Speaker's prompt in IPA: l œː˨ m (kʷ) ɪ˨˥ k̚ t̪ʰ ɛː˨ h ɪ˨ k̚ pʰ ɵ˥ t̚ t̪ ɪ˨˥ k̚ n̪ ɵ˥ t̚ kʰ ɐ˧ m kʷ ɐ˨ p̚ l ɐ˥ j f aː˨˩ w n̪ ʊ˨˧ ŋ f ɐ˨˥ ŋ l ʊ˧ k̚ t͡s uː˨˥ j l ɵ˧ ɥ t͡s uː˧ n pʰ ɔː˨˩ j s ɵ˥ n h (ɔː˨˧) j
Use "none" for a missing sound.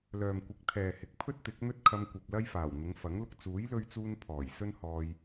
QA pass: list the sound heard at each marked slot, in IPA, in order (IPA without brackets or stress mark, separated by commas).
kʷ, ɔː˧